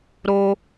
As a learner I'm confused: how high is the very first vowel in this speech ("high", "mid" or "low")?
mid